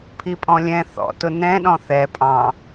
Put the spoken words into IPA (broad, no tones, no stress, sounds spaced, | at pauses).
pʰ i pʼ ɔ̃ lʲ ɛ̃ θ ɔ̰ t ʊ n ɛ̃ ɗ ɔ̃ θ ɛ pʼ ɑ̃